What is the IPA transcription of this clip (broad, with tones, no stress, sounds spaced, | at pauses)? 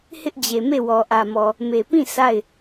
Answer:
h ɪ˦ ʔ d͡ʑ e˨ m e˦˨ w ɔ˨ ʔ ä˨ m ɔ˨ | m e˨ p ĩ˦˨ s a˦˨ ɪ̯